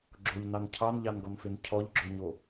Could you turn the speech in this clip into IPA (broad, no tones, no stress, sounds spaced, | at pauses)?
ɡ͡ǁ o ʎ n ɑ n cʰ ɑ n ʎ ɑ n ɡ ɔ n f e n cʰ ɔ ʎ ɡ͡ǁ ɵ ɲ o